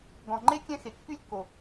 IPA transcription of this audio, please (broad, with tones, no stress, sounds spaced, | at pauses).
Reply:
ɡ ɔ̃˩ ŋ͡ǃ e˥ kʲ ɛ̃˥ x e˩ kː y˥ lʲ kː o˩